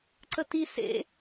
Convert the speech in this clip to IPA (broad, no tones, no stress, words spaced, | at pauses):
ǀəti sḛ